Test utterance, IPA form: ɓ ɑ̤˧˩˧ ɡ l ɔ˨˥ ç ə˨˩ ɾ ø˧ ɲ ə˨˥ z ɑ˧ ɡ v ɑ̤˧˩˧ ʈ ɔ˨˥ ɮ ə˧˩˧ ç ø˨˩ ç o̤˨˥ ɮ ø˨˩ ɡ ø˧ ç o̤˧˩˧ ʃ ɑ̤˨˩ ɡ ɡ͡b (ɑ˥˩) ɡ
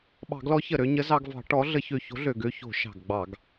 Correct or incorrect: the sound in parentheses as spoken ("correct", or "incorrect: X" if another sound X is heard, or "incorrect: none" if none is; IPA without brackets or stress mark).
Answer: incorrect: ɑ˧˩˧